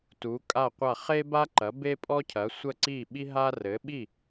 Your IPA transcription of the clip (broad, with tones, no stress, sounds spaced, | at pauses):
t u˩˥ kʼ a˥˩ qʷ a˥˩ χ e˥ b a˥ ǃ ɐ˩˥ b e˥ pʼ ɔ˥ cʰ ɐ˩˥ sʷ ə˥˩ ǀ i˥˩ ɓ i˥ ɦ a˥ r ɘ˩˥ ɓ i˥˩